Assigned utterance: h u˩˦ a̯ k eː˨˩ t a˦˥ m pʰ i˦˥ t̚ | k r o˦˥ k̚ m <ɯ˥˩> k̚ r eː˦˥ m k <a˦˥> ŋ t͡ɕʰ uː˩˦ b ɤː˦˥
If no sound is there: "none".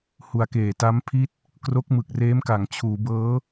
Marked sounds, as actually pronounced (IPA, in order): ɯ˨˩, a˩˦

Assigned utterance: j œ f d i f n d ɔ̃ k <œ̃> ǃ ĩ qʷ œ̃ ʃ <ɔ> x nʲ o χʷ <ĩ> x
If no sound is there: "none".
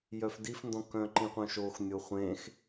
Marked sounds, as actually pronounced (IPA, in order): œ̃, o, ẽ

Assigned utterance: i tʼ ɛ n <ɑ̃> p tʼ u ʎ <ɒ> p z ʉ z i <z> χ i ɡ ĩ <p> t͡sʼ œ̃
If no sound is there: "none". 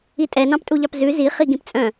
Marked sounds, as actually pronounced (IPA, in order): ɑ̃, ɑ, none, p

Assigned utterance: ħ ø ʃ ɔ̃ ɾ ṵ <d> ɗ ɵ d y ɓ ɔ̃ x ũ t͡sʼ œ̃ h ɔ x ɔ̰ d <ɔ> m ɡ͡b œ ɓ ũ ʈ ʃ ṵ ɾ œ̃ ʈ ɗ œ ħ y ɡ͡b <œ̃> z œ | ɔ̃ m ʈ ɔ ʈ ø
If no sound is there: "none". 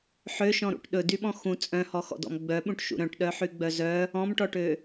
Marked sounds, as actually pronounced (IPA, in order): ʈ, ɔ̰, œ

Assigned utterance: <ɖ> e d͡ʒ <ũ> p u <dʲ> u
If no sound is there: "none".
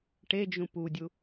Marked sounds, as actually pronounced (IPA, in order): ʈ, ũ, dʲ

